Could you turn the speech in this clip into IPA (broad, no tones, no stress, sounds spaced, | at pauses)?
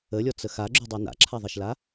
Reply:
ə lʲ ɔ t͡s ə x a ɡ͡ǁ y dˤ œ n a̰ ǁʰ a ðˤ e ʃ l a